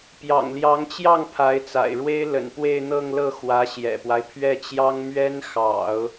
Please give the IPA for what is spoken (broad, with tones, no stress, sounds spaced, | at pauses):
p j ɑ̰˨˩ ŋ l j ɑ˧˥ ŋ t͡ɕ j ɑ˥˩ ŋ pʰ a˧˥ ɪ̯ t͡s a̰˨˩ ɪ̯ ɻ w e˥ ɪ̯ l ə̰˨˩ n p w e˥˧ ɪ̯ n̪ ɤ˥˧ ŋ l ɤ˥˩ x w ä˧˥ ɕ j ɛ̰˨˩ p w a˦ ɪ̯ pʰ ɥ ɛ˥˩ t͡ɕ j ɑ˥ ŋ m ɥ ɛ˥ n x ɑ̰˨˩˦ ʊ̯